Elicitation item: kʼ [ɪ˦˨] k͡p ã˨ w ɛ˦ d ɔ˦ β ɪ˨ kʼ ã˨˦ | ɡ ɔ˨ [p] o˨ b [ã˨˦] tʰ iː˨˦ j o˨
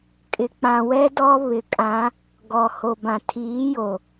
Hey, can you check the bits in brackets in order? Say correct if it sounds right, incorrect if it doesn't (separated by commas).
incorrect, incorrect, incorrect